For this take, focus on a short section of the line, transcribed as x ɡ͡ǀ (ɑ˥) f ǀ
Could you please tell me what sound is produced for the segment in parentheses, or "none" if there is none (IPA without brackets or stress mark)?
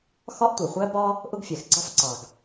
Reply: ɑ˥